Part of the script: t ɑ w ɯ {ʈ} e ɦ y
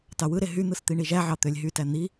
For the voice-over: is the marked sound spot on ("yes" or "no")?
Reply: no